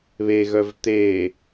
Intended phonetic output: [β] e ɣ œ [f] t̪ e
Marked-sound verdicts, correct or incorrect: correct, incorrect: v

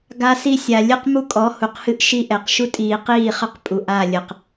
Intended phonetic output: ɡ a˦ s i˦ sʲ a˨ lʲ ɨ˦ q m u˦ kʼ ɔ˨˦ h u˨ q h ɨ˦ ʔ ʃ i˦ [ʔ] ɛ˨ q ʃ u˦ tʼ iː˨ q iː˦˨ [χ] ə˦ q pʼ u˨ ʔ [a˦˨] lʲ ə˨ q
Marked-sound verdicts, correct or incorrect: correct, correct, correct

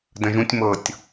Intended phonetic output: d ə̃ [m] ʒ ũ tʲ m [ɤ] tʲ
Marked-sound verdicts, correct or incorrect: incorrect: none, correct

